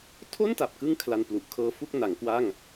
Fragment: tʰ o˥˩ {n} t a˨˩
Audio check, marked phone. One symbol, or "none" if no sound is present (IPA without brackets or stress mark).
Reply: n